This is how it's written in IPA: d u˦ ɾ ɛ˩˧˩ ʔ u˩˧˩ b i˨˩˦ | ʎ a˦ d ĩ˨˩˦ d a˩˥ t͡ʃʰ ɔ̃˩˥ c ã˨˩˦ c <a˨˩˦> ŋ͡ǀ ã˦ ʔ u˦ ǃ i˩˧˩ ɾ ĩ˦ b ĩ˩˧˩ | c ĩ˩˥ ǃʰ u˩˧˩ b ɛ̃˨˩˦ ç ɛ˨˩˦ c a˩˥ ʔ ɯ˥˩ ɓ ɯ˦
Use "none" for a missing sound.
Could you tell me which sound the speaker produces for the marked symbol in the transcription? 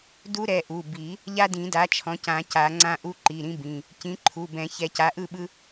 a˨˩˦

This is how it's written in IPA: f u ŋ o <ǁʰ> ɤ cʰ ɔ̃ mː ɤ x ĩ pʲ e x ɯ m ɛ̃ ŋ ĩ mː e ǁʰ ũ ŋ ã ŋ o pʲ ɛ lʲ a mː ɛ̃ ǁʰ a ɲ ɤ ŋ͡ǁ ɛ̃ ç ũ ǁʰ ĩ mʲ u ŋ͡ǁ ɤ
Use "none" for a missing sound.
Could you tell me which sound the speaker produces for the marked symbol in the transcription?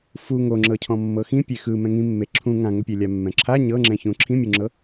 ŋ͡ǁ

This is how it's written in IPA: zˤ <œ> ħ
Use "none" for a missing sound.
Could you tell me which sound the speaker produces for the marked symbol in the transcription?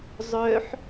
œ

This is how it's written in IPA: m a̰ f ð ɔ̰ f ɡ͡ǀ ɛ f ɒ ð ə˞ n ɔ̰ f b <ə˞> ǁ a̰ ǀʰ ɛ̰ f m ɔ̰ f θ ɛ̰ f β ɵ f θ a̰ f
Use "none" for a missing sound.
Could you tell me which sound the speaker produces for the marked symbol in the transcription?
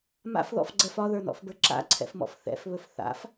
ə˞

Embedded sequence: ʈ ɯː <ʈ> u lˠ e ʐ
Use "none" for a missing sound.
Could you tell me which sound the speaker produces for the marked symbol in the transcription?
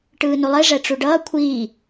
n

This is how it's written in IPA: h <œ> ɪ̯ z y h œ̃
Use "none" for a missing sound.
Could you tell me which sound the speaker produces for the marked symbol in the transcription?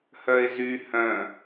œ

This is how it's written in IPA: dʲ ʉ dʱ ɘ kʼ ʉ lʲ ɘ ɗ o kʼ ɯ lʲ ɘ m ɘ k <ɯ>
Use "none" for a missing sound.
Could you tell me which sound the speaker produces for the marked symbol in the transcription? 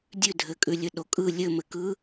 ɯ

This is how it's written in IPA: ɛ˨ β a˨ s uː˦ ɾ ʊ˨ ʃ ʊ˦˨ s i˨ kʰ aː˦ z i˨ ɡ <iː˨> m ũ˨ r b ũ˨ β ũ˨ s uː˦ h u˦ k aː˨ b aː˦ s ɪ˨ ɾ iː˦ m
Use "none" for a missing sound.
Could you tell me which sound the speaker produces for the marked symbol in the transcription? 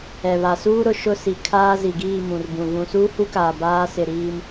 iː˦˨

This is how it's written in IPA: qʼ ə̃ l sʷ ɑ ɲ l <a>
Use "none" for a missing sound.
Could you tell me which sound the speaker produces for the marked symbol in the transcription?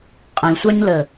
ə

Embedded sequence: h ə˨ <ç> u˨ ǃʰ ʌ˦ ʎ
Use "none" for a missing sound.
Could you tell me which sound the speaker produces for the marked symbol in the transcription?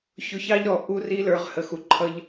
x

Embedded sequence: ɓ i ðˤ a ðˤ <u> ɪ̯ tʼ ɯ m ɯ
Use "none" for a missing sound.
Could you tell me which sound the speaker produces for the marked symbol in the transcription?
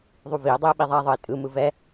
ɯ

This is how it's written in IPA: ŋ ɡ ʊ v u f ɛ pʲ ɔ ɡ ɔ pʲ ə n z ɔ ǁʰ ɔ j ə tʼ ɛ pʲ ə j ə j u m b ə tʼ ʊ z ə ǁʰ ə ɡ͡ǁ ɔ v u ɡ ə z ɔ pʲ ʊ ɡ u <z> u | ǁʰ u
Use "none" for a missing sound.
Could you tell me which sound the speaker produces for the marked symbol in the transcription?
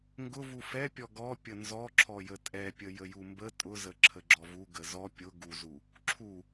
z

